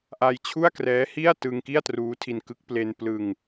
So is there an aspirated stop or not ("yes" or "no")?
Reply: yes